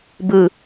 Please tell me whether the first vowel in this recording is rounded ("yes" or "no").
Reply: no